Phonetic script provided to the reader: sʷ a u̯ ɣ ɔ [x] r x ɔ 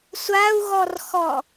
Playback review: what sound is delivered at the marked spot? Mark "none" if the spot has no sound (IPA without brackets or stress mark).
none